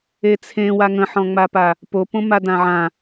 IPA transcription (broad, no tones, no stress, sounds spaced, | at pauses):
e t͡sʰ ẽ w a ŋ ə̃ ħ ɔ̃ ŋ͡m a p a | p o p õ m a d ã ʕ ã